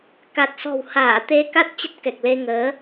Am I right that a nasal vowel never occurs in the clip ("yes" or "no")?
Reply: yes